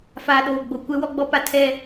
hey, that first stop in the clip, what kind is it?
implosive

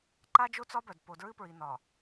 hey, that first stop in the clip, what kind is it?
click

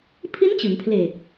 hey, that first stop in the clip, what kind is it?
aspirated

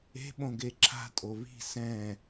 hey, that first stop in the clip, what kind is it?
implosive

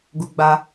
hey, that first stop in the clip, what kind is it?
plain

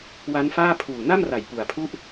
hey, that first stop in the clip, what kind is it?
aspirated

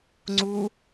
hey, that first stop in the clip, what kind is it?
click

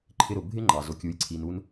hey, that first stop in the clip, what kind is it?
click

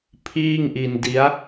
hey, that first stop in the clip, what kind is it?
aspirated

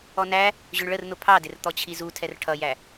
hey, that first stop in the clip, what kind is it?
aspirated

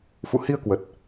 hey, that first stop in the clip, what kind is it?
plain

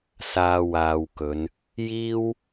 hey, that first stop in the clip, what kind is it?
plain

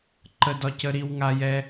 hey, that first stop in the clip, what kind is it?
click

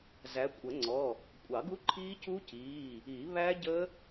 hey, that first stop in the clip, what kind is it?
ejective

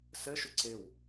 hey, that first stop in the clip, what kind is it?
click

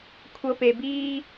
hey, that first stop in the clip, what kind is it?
aspirated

